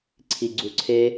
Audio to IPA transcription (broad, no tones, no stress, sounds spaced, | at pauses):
ǀʰ i ɡ͡ǀ u ǀʰ e